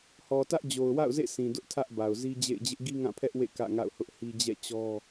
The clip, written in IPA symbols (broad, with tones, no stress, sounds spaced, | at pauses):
h ɔ˨ t ä˦ ʔ d͡ʑ o˨ ʊ̯ w a̰˦˨ ʊ̯ z ḛ˦˨ s ĩ˨ d ʊ˦ ʔ tʰ ä˦ ʔ b a˨ ʊ̯ z i˦ d͡ʑ ḛ˦˨ ɪ̯ d͡ʑ ɪ˦ ʔ ɡ i˦ ŋ ã˦˨ pʰ ɛ˦ ʔ w ḛ˦˨ k ä̰˦˨ ŋ a̰˦˨ ʊ̯ h ʊ˦ ʔ h i˦ d͡ʑ ɛ̰˦˨ t͡ɕ ɔ˦